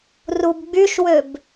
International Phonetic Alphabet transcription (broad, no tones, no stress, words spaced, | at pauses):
rubɡ͡byʃwøb